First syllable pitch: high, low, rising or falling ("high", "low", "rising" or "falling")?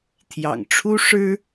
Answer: low